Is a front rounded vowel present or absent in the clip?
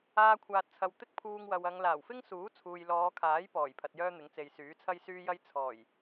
present